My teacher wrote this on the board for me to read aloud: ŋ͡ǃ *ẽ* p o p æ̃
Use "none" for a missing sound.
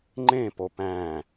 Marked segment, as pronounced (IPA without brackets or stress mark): ẽ